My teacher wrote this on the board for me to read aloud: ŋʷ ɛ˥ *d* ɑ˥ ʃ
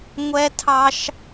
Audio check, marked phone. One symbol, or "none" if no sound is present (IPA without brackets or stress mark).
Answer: tʰ